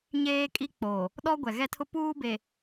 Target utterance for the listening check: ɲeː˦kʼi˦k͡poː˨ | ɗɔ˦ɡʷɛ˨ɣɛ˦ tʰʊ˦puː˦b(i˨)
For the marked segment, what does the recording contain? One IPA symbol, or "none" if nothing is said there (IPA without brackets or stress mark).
e˨